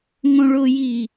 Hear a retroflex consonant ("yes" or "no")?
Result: yes